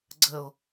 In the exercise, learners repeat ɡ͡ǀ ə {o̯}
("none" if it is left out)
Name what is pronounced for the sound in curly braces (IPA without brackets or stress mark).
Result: o̯